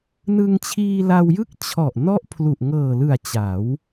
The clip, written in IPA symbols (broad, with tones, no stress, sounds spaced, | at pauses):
n ɯ˧ ŋ t͡ɕʰ iː˧ l a˧ w j ɯ˦˥ k̚ t͡ɕʰ ɔ˨˩ ʔ n ɔ˦˥ ʔ pʰ l u˨˩ ʔ ŋ ɤː˨˩ l ɯ˨˩ a̯ t͡ɕ a˩˦ w